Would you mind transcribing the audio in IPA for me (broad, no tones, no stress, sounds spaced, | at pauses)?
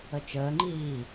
ə t͡ʃ əː ŋ͡ǃ iː